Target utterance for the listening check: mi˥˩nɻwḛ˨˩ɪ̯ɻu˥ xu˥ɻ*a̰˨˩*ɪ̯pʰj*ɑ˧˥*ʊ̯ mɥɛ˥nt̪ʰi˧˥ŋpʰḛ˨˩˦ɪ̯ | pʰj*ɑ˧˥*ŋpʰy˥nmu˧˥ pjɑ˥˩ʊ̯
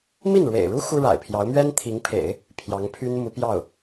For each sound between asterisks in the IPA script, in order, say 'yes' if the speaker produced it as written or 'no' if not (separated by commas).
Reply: yes, yes, yes